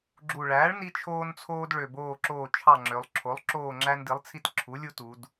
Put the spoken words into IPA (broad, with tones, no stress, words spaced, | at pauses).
ɡ͡ǁu˨˩ɭæː˩˥ɭ ni˦t͡ʃʰoː˦nt͡sʰoː˦d ɭø˨˩boː˦˨ǁoː˦˨ t͡ʃʰɑ˦˨ŋ͡ǁø˩˧lˠ ǁʰo˩˥lˠ ǁoː˦˨ŋ͡ǁæ˦ndi˩˥lˠt͡sʰi˦t ǁʰu˩˥lʲu˦tu˩˧d